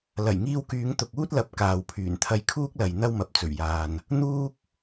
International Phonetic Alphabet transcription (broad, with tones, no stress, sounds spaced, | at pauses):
l ɐ˨˩ j ŋ iː˧ w k yː˨˧ ŋ t̪ ʊ˨ k̚ uː˥ t̚ l ɐ˨ p̚ k aː˨ w pʰ yː˨˩ n t̪ʰ ɐ˧ j kʰ uː˥ k̚ l ɐ˨ j n̪ ɐ˥ w m ɐ˨˥ p̚ t͡s ɵ˨˩ ɥ j aː˨ n | n̪ uː˥ k̚